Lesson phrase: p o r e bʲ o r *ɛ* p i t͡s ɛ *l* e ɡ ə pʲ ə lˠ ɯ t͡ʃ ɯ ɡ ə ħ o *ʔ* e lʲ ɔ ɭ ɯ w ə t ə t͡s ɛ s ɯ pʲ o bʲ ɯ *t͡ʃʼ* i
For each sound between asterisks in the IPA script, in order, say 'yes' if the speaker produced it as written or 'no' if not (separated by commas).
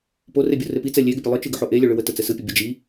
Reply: no, no, yes, no